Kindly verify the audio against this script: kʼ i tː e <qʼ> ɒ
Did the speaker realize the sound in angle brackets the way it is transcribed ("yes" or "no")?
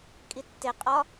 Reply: yes